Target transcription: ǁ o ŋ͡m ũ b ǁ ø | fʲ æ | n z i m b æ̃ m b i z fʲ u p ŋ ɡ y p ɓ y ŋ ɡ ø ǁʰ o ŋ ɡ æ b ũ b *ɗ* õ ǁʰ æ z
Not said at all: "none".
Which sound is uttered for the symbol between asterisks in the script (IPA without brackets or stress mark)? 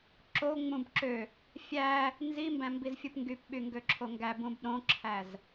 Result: ɗ